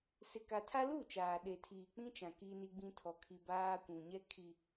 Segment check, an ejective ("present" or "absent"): absent